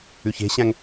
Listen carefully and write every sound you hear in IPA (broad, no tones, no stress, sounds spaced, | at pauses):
ʉ ç e̤ ɕ æ̃ ŋ